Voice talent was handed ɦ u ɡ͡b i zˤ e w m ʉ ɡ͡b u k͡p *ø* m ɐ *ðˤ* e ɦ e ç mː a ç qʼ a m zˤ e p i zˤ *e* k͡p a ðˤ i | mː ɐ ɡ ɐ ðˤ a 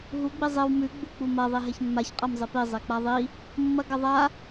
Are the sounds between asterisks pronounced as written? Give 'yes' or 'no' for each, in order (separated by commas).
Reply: no, yes, yes